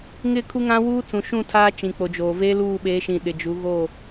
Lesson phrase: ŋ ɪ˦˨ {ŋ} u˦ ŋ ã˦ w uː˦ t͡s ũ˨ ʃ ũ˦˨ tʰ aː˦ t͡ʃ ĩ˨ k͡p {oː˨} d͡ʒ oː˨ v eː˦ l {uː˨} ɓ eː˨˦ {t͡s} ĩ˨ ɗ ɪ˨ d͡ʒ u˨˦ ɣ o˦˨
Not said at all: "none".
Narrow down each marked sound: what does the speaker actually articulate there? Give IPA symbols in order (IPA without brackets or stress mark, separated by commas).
kʰ, o˨, uː˦˨, ʃ